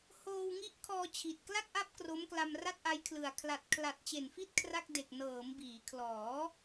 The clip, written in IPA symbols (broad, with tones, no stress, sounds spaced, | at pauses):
h oː˧ w ŋ i˦˥ ʔ kʰ ɔː˧ t͡ɕʰ i˨˩ t̚ k l a˥˩ k̚ ʔ a˦˥ p̚ k r o˦˥ m k l a˧ m r a˥˩ t̚ ʔ a˦˥ j kʰ l ɯ˨˩ a̯ kʰ l a˨˩ t̚ kʰ l a˨˩ t̚ t͡ɕ e˨˩ n f i˥˩ t̚ kʰ r a˥˩ k̚ d e˨˩ k̚ n ɤː˩˦ m b iː˩˦ kʰ l ɔː˩˦